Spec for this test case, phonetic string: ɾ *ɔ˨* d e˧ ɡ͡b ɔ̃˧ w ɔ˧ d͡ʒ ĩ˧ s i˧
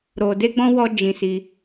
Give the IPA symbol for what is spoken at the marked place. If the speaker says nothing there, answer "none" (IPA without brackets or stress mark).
o˨